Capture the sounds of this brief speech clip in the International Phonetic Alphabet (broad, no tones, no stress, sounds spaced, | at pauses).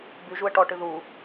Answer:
b y ʒ u ə̯ ʈ ɔ ʈ ɨ ð u